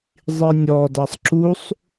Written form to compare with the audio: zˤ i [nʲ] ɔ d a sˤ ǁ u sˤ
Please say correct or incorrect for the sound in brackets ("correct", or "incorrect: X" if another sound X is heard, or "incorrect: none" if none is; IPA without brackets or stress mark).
correct